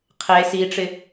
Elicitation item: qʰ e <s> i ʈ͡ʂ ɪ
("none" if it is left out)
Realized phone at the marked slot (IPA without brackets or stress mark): s